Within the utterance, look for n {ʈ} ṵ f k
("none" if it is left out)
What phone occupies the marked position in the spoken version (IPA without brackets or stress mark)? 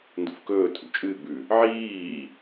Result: d